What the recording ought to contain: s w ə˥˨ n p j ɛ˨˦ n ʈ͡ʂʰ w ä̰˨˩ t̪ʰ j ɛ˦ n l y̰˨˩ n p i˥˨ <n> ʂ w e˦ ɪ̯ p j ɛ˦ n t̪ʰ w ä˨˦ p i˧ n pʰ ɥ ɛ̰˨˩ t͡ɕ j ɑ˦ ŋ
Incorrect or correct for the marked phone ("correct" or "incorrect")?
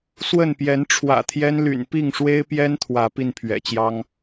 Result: incorrect